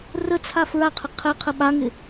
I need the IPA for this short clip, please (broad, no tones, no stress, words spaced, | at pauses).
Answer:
rə t͡sʰafɹaqʰɪ qʰɛ qʰəɓaŋɪ